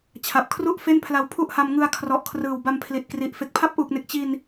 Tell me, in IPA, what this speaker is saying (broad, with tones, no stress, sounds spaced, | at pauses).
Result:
t͡ɕʰ a˨˩ p̚ kʰ r u˥˩ ʔ f e˥˩ n pʰ l a˧ w pʰ u˥˩ ʔ h a˧ m ŋ ɯ˧ a̯ kʰ r ɔ˨˩ ʔ kʰ r ɯː˨˩ w b a˧ m pʰ l i˨˩ t̚ k r i˨˩ ʔ f e˨˩ k̚ pʰ a˦˥ p̚ ʔ uː˨˩ k̚ n e˨˩ k̚ t͡ɕ i˧ n